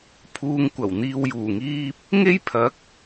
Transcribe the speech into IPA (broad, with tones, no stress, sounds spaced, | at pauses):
pʰ uː˧ ŋ kʷ ɐ˨˩ w n̪ iː˨ w j uː˨˩ ŋ iː˧ p̚ | ŋ e˥ j pʰ ɐ˨˥ k̚